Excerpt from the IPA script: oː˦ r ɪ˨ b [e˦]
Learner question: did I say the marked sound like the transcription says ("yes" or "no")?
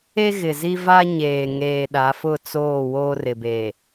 no